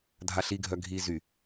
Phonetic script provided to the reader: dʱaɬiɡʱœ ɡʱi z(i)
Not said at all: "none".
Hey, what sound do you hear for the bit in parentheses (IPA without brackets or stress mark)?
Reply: y